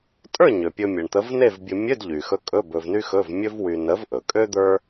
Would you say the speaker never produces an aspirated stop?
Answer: yes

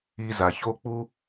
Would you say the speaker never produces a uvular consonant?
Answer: yes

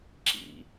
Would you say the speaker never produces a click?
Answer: no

